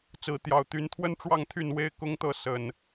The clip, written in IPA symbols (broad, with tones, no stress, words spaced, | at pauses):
t͡sɹ̩˨˦ t̪jɑ˨˩ʊ̯t̪y˨˦nt̪ʰwə˦n ʈ͡ʂwɑ˥˨ŋt̪ʰy˥˨nwe˦ɪ̯ kʊ˦ŋt̪ɤ˥˨ sə˨˩n